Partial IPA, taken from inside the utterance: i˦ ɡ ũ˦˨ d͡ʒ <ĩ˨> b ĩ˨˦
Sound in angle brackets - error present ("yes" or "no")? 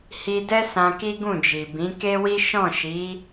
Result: yes